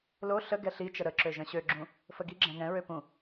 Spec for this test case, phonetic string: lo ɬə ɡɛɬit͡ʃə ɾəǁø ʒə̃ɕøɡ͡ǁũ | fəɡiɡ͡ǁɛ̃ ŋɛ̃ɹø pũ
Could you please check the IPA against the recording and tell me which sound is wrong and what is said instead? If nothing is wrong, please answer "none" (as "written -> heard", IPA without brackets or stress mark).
none